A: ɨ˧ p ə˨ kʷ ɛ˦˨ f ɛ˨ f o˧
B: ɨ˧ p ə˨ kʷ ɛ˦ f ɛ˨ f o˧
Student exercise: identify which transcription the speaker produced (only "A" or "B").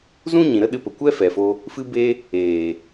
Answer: B